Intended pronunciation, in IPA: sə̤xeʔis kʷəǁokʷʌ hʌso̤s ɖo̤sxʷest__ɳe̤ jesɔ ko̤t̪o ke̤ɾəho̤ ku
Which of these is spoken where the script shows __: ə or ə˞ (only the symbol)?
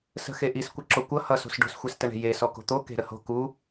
ə